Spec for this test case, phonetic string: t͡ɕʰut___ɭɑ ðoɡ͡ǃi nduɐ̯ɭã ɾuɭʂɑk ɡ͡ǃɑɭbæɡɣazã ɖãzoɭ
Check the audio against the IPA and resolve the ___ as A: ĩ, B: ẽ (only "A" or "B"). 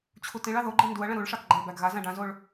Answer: A